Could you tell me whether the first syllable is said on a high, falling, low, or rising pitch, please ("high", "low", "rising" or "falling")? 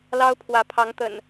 high